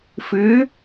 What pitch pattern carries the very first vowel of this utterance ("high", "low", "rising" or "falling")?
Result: rising